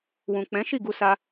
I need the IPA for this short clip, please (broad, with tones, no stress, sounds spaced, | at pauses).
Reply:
w ũ˨ k͡p ɛ̃˨˦ ʃ i˦˨ ɡ u˧ s a˧